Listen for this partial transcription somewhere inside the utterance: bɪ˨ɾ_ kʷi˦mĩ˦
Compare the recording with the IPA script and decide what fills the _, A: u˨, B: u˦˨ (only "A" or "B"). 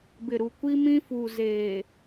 A